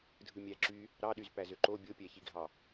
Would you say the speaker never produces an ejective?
yes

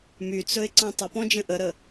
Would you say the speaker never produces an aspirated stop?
yes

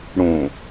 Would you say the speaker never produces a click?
yes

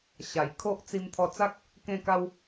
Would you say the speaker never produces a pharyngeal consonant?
yes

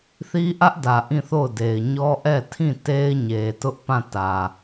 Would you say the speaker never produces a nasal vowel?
no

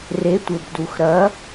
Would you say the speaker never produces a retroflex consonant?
yes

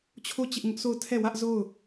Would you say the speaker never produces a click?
yes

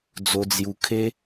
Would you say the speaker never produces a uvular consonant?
yes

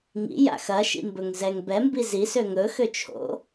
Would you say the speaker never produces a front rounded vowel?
no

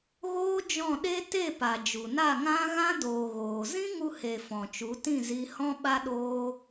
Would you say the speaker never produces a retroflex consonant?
yes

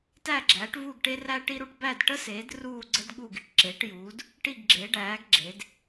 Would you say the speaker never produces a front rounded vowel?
yes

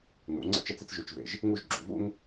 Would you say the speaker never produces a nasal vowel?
yes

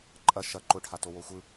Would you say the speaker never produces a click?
no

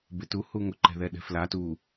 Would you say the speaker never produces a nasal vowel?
yes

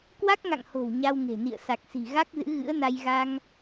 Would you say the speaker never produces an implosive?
yes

